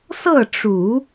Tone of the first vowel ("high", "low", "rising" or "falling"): falling